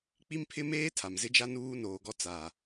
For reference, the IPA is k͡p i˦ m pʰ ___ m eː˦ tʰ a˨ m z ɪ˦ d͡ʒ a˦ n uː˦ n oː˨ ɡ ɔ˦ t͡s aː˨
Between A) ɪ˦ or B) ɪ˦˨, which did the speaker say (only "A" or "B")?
A